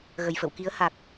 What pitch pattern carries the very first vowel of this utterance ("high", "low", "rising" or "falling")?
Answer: low